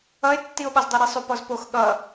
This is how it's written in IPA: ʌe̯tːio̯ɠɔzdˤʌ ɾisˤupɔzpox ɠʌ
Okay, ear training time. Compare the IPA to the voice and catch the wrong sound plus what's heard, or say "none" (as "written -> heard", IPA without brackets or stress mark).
none